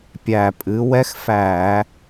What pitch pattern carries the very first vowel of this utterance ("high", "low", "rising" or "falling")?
low